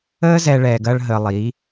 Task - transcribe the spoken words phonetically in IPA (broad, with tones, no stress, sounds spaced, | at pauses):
əː˦ z ɛ˧ ɭ ɛː˧ ɡ ɐː˦ ɭ ɦ əː˧ lˠ iː˨˦